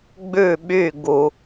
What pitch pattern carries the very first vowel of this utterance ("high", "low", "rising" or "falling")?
falling